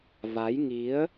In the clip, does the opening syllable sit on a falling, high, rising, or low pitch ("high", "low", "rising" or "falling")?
rising